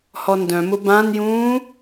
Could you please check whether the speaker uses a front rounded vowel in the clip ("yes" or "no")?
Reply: yes